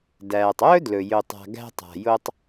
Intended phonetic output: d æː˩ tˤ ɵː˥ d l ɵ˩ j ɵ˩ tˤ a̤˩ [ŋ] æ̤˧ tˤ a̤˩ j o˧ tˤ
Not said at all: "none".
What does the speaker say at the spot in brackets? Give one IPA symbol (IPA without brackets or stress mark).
ɡ